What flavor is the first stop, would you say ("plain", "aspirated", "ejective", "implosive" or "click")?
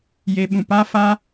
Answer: implosive